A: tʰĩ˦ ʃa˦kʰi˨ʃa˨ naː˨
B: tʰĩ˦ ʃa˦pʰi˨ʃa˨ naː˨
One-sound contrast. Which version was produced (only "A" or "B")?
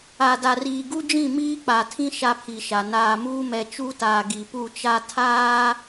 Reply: B